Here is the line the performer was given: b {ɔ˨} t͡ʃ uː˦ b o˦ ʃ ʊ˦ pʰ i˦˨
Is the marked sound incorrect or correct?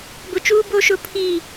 incorrect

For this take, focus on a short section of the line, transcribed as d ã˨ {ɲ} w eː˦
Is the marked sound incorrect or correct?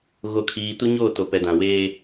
incorrect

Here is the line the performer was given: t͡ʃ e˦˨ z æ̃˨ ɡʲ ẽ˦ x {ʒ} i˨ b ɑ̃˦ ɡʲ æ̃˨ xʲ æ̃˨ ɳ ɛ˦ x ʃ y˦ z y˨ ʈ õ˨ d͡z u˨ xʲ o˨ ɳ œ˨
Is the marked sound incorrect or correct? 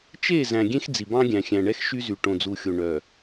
incorrect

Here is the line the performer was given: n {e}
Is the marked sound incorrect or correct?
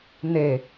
correct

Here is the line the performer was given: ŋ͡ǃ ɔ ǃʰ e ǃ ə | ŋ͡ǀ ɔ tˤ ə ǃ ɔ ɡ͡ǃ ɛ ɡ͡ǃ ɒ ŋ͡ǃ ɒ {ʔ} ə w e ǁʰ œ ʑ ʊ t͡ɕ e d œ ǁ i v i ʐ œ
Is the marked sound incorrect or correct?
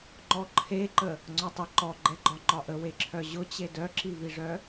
correct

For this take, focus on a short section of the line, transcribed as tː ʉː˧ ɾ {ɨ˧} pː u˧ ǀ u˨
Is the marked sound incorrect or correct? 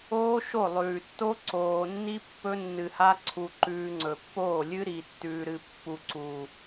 correct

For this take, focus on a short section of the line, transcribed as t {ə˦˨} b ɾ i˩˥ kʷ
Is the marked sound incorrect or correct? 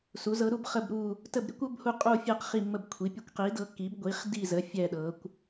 correct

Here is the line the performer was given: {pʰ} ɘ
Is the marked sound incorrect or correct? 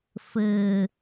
incorrect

